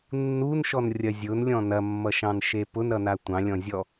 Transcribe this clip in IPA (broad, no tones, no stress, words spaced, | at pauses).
nːunʃɔnrʲɐ zʲʊnlʲɔ̃ nɐmːʌʃɑ̃nʃe pʊnɾʌna tʷɑ̃lʲɔ̃zʲɔ